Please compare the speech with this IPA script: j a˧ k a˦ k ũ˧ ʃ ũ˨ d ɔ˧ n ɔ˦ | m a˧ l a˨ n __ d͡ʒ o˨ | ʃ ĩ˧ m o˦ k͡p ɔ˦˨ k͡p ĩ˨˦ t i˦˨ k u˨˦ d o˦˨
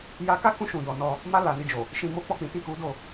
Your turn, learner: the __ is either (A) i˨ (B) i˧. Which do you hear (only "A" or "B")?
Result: B